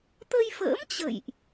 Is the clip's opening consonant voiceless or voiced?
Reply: voiceless